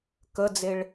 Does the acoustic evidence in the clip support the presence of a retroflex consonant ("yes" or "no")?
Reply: yes